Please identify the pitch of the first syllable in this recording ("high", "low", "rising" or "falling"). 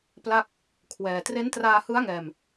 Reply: falling